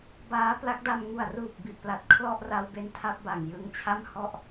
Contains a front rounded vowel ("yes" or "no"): no